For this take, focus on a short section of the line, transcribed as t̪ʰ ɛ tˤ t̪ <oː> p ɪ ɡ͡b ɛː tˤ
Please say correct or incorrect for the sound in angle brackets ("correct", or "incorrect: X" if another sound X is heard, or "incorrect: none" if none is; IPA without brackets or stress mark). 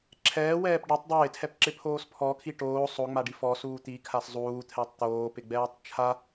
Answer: correct